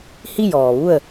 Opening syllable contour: falling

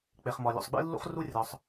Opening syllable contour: low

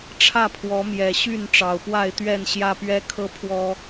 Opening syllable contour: falling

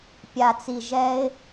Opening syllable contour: low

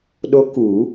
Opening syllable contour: rising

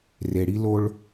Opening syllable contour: low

